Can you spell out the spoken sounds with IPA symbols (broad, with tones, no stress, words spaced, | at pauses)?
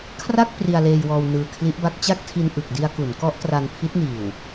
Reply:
kʰra˥˩k̚ pri˧a̯leː˧jwɔː˧w nɯː˧kʰli˦˥ʔba˦˥k̚ t͡ɕa˥˩k̚tʰi˧n ʔɯ˨˩k̚di˧a̯ku˩˦n kɔ˦˥ʔtra˧npʰi˦˥t̚niː˨˩w